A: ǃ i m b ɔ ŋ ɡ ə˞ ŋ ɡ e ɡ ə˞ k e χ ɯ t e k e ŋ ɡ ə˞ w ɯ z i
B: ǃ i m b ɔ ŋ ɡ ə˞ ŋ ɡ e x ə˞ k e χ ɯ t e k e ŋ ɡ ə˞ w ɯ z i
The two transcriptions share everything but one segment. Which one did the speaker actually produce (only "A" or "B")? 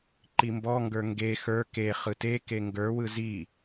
B